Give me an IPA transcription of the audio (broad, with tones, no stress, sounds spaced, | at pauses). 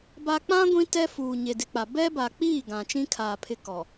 b a˦ k͡p ã˦ ɡʷ ĩ˦ t ɛ˦ f uː˨ ɲ e˨ d ɪ˨ k͡p a˨ b ɛ˦ b a˨ k͡p iː˦˨ ɡ ã˨ t͡ʃ ĩ˦ kʰ aː˨ pʰ ɪ˦ k ɔ˨